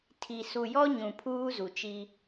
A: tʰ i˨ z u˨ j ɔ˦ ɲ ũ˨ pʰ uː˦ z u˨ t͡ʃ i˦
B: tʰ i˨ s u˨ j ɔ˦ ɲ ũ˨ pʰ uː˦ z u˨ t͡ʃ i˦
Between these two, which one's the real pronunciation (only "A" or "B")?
B